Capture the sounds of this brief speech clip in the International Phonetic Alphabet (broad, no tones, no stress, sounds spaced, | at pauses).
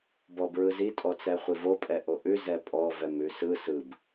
b ɔ b ɹ ɯ z i tʼ ɔ t͡s ɛ χʷ i v o pʼ ɛ ʔ o ʔ ʉ z ɛ pʼ ɔ v ɛ m ʉ s ɯ s ɯ b